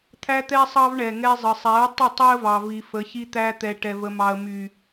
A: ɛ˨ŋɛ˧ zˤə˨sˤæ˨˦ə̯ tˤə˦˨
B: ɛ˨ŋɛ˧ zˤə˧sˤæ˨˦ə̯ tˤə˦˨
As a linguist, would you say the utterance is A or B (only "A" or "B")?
A